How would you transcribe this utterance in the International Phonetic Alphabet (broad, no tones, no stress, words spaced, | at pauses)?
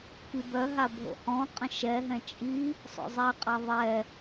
kibœɦa bʱo̰hɔ̃qʼə̃ ʃɛɦɛ̃ t͡ʃʼi | sˤo̰zˤɛqʼa ðˤɛ